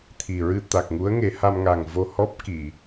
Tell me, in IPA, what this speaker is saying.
t̪ʰ i˨˩ ɹ ɨ˧ t̪ a˨˩ k̚ ŋ u˧˥ ə̯ ŋ e˨˩˦ h a˧ m ŋ a˨˩ ŋ v o˧ h ɔ˦˥ p̚ k i˨˩˨

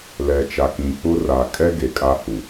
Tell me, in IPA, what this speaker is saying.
l ɛ˨ t͡ʃ a˨ k ĩ˨ k͡p ʊ˦ r a˨ kʼ ɛ˦ ɡ e˨ kʼ a˦ h u˨

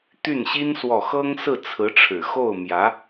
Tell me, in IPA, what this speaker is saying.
t̪ y˥˩ n ɕ i˥ n s w ɔ˥˩ x ɤ˥ ŋ s ɹ̩˥˩ t͡sʰ ɹ̩˧˥ ʈ͡ʂʰ ɻ̩˨˩ x o˥˩ ʊ̯ m j ä˧˥

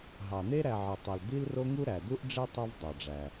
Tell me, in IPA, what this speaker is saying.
ɦ ɑ˩ n̪ e˦ ɾ æ˨ ʕ ɯ˩ tˤ ɯ˩ l d̪ i˦ l r o˦ ŋ u˦ ɾ æ˩ d̪ u˥ ʔ ɖ͡ʐ e˥ tˤ e˦ v dˤ ɑ˩ ɖ͡ʐ æ˩

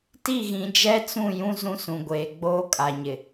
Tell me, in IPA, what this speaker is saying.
t i˦˨ ɣ ĩ˨ d͡ʒ ɛ˦ t͡s ũ˦˨ j ũ˦ z ũ˦ s ũ˨ ɡʷ eː˨ ɡ͡b oː˦ kʼ a˨ ɲ ɪ˨

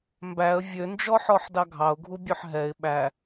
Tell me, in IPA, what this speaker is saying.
m b æ ə̯ vʲ ø n d͡ʒ ɔ ħ ɔ ħ d ɑ ɡʱ ɑ ʊ̯ ɡʱ u bʲ ø ħ ɦ ɛ ɪ̯ ɓ æ

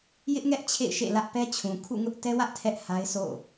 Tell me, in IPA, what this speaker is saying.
j ɪ˦ ʔ ŋ ɛ˦ ʔ t͡ɕʰ ḛ˦˨ ɪ̯ ʃ ḛ˦˨ l ä˦ ʔ p ɛ˦ t͡ɕʰ ũ˨ kʰ ṵ˦˨ ŋ ʊ˦ ʔ t ɛ˦ w ä˦ ʔ tʰ ɛ˦ ʔ h a˦ ɪ̯ sʰ o̰˦˨

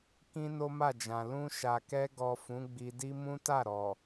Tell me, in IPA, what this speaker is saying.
k ĩ˦ n o˦ m a˦˨ d͡ʒ ã˨ l ũ˧ ʃ a˨ k ɛ˧ ɡ ɔ˨ f ũ˨˦ ɡ͡b i˧ d i˦ m ũ˦ t a˦˨ ɾ ɔ˨

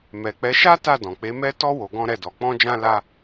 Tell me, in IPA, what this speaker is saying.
m ɛ˨ k͡p ɛ˨˦ ʃ a˦ t a˦˨ d ɔ̃˨ k͡p e˨˦ m ɛ˦ t ɔ˦ w o˧ ɡ ɔ̃˦ ɾ ɛ˦˨ d ɔ˨˦ k͡p ɔ̃˦ d͡ʒ ã˦ l a˦

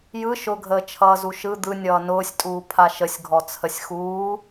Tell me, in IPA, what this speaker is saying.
j ɯ ʃ ʊ ɡʱ əː t͡ʃʰ ʌː z u ʃ ɯ d̪ ɯ nʲ ʌː n ʊː sʲ tʼ uː pʰ a ʃ ə sʲ ɡʱ ɔ t͡sʰ ə sʲ x uː

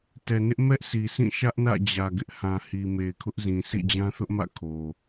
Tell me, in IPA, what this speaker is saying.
t ɛ˨ n ɪ˦ ʔ m ɛ˦ ʔ sʰ i˨ s ĩ˦˨ ʃ ä˦ ʔ n ä̰˦˨ d͡ʑ ä˨ ɡ ɪ˦ ʔ h ã˨ h i˨ m e˨ ɪ̯ kʰ ʊ˦ ʔ z ĩ˨ sʰ ḭ˦˨ d͡ʑ ã˦ θ ʊ˦ ʔ m ä̰˦˨ kʰ o˨

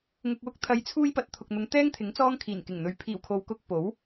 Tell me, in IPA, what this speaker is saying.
ŋ ʊ˧ k̚ w ʊ˥ k̚ t̪ʰ ɐ˨˧ j t͡sʰ uː˧ j p ɐ˨ t̚ t̪ʰ ʊ˨ k̚ n̪ ʊ˨˧ ŋ t̪ ɛː˥ ŋ t̪ʰ ɪ˨˥ ŋ t͡s ɔː˥ ŋ kʰ iː˨˩ n k ɪ˨˩ ŋ n̪ ɵ˨˧ ɥ pʰ iː˨˩ w kʰ o˨ w k ʊ˧ k̚ p o˨˥ w

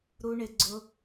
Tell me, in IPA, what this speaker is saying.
ɾ u˧ ɳ ɪ˨ ɡ͡ǀ ʊ˧

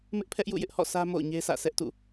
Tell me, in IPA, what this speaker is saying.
m ɪ˦ ʔ pʰ ɛ˦ ʔ j ṵ˦˨ j ɪ˦ ʔ h ɔ̰˦˨ s ä˦ m o̰˦˨ ʊ̯ ɲ e˦ sʰ ä̰˦˨ s ɛ˦ ʔ t ṵ˦˨

